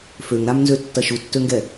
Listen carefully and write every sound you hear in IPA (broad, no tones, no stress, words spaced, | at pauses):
føŋɾamnzøtːɐ ʃutːøŋɡɛ